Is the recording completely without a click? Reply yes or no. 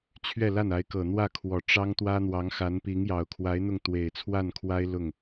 yes